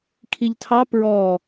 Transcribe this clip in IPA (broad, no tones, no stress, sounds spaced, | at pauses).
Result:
kʰ i ʎ tʰ ɑ p ɹ ɔ